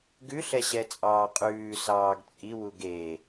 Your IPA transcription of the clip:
ɡ ʉ ɬ ɛ ɕ ɛ t͡sʼ ɑː qʼ ʉː s ɑː ɡ t͡sʼ i w u ɡ e

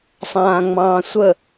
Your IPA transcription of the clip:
sˤ ãː ŋ͡m ɑ̃ː sʷ ə

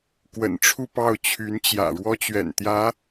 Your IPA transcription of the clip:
k w ə̰˨˩ n ʈ͡ʂʰ u˥˧ p ɑ˥˩ ʊ̯ t͡ɕʰ y˧˥ n t͡ɕ j ä̰˨˩ ɻ w ɔ˥ t͡ɕ ɥ ɛ̰˨˩ n t̪ j ä˧˥

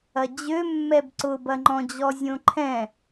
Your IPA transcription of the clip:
ɐ d͡ʑ ø mː ɛ b ǀ ʊ b ɐ ŋ͡ǃ ɔ̃ d͡ʑ ɔ zʲ õ ǃʰ ɛ̃

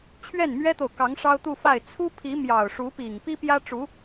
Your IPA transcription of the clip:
t͡ɕʰ ɥ ɛ˥˩ n m ɥ ɛ˥ t̪ o˨ ʊ̯ k ɑ˧˥ ŋ ʂ ɑ˥ ʊ̯ t̪ u˥˧ f a˥˩ ɪ̯ t͡sʰ u˥ pʰ i˧˥ m j ɑ˨˩ ʊ̯ ʂ u˧˥ p i˨˩ ŋ p i˥ p j ä˥ ʈ͡ʂ u˧˥

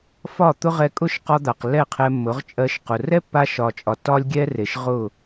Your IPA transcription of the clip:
f ɒ˦˨ t̪ ʊ˦ ʁ ɛ˧ kʼ ʊ˦˨ ʃ q ɒ˧ d̪ a˨ q lː ɛ˦˨ qʰ ɛ˧ mː ʊ˨˦ ʁ t͡ʃʼ ɜ˧ ʃ q ʊ˨ r ɛ˦ pː a˧ ʃ ɒ˨ t͡ʃʼ ɒ˨ t ɒ˦ lʲ ɡʲ ɛ˦ r e˨ ʃ ʁ ʊ˦˨

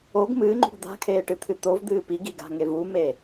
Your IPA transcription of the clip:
o ɡ m ɨː ŋ͡ǃ ṳ ɡ d̪ a̤ kʰ eː ʈ ɨ t̪ʰ ɨ t̪ o v d̪ ɨː p i ɡ i ɡ a̤ ŋ e v u m e

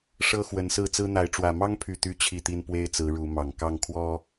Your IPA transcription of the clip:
ʂ ɤ˦ x w ə˨˦ n s ɹ̩˥˨ t͡s ɹ̩˦ n̪ a˨˦ ɪ̯ ʈ͡ʂ w ä˨˩ m ɑ˦ ŋ pʰ y˨˩ t̪ y˦ t͡ɕʰ i˥˨ t̪ i˦ n p w e˦ ɪ̯ t͡s ɹ̩˨˦ ɻ u˨˦ m ɑ˨˩ ŋ k ɑ˥˨ ŋ kʰ w ɔ˦

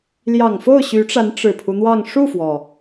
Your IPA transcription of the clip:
l j ɑ˨˩ ŋ f o˥˩ ʊ̯ ɕ y˧˥ ʈ͡ʂ a˧˥ n ʈ͡ʂ ɻ̩˨˩ pʰ u˦ n̪ w ɑ˥˧ ŋ ʂ u˥˩ f w ɔ˩

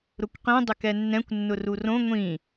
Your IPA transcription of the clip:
ɾ ʊ kʷ q ĩ dˤ ɪ k ɛ nː ɛ̃ kʷ nː ʊ r u r õ ŋʷ ĩ

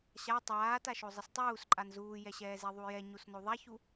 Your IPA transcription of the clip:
ɕ a tˤ aː t a ʃ o zˤ ɪ s tˤ uː s ǃʼ a n z uː j ɛ ɕ ɛː z e ðˤ u j ɛ ɲ u s n o ðˤ a ç u

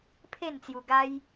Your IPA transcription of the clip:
pʰ e˥˧ n t͡s j u˧ ɡ a˦ j

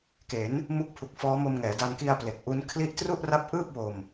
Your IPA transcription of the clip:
k e˩˦ n | m u˦˥ k̚ pʰ u˨˩ k̚ f ɔː˦˥ m o˧ m ŋ ɛː˩˦ d a˧ n k i˧ a̯ p l e˨˩ k̚ ʔ u˦˥ n kʰ l i˥˩ ʔ t r u˥˩ ʔ r a˦˥ p̚ ʔ ɯː˥˩ p̚ w o˧ m

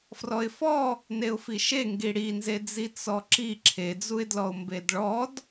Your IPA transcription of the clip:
f r ɔ ɪ̯ f ɔ | n e ʊ̯ f i ʃ e ŋ ɡ i ɽ i n z e d͡z i t͡s ɔ ǁ i ǁʰ e d͡z u ɪ̯ d l ɔ ʊ̯ m b e d ɭ ɔ d

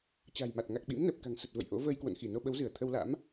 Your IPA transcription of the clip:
t͡ɕ a̤˨˩ j m a˨˩ t̚ ŋ a˨˩ k̚ ɓ ḭ˧˥ m n əː˨˩ p̚ k a̤˨˩ ŋ s ə˨˩ t̚ v ə̰˧˨ j ʔ o̰˧˥ v əː˧ j k w o̰˧˨ n x i˧˩ n o˧ ɓ ə˨˦ w z ɨ˧˩ ə̯ t̪ʰ ə˧ w l a̰˧˥ m

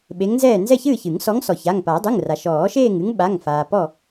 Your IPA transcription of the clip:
ɓ e˨˦ ŋ n z ɛː˥˨ n z ɛ˥˨ ç ɨː˥˨ ç ɨ˨˩˦ ŋ s ɔ˨˦ ŋ s ɔ˩ ç a˩˧˩ ŋ p a˨˩˦ dˤ ɨ˩˧˩ ŋ r a˩ ʃ ɔː˨˩˦ ʃ eː˥˨ ŋ ɨ˨˦ ŋ ɓ a˩˧˩ ŋ f aː˩ p ɔ˥˨

